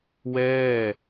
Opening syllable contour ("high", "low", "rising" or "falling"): falling